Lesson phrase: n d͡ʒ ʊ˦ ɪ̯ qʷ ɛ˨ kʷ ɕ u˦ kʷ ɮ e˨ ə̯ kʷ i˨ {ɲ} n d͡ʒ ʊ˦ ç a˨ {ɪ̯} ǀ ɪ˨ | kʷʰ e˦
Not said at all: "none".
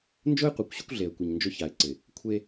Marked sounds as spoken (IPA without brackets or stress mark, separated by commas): ɲ, ɪ̯